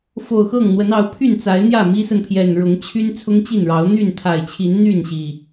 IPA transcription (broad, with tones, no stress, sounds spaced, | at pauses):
f o˨˩ ʊ̯ x ɤ˥˨ ŋ n̪ w ə˨˦ n ɑ˨˦ ʊ̯ pʰ y˥˨ n t͡s a˨˦ ɪ̯ n̪ j ä˥˨ m i˦ s ə˨ n pʰ j ɛ˨˩ n ɻ ʊ˨˦ ŋ t͡ɕʰ y˦ n t͡sʰ ʊ˦ ŋ t͡ɕ i˥˨ n ɻ ɑ˨˦ ʊ̯ n̪ y˥˨ n t̪ʰ a˨˩ ɪ̯ t͡ɕʰ i˨˦ n n̪ y˥˨ n ɕ i˨˩